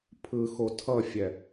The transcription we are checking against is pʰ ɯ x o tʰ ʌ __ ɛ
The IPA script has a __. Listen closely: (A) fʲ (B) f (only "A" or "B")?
A